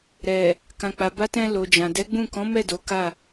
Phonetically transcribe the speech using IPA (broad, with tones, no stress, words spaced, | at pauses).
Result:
ɾɛ˨ | kã˨k͡pa˨ ba˧tɛ̃˧ lo˨d͡ʒã˨ dɛ˨˦ɡ͡bũ˦˨ kɔ̃˨˦mɛ˦˨ do˨˦ka˦˨